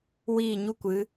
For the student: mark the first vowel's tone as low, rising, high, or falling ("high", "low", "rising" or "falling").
falling